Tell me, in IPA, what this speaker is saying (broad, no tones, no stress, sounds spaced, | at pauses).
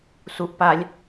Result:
s u ʔ p a lʲ